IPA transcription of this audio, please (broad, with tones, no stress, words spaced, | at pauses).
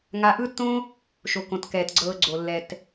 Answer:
ŋa˧ʔɯ˦tːõ˦ | ʃo˨kõ˨tkɛː˨t ɡ͡ǀɤː˧ɡ͡ǀo˨lːɛ˨t